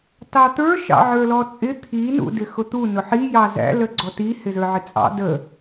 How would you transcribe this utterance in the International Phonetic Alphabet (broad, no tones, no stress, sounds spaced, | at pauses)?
t ɑ t̪ ə˞ ʃ ɑ̰ ʕ ə˞ l ɔ t͡sʼ ɪ t̪ʰ i n ṵ d ɪ x ʊ t̪ u n ʊ ħ i j ɑ z æ̰ l ə ɡ͡ǀ ɔ t i h ɪ z ə˞ ʕ ɪ t͡sʼ ɑ̰ d ə